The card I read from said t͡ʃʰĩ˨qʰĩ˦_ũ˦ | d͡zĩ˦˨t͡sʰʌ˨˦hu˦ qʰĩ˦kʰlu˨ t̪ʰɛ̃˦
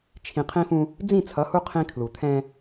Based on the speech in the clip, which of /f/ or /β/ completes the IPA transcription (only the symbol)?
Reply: f